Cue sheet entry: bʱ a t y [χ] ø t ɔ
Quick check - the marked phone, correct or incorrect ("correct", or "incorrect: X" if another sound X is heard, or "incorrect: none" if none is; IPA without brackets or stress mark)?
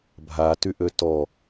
incorrect: ʔ